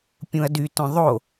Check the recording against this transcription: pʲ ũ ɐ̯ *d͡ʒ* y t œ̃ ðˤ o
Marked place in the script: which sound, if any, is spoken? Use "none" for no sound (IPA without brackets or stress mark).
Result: d